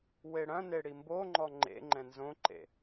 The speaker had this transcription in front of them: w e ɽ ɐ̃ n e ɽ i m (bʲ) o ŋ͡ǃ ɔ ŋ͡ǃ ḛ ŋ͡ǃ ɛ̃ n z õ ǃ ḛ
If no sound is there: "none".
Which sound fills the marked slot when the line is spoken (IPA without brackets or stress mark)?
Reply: b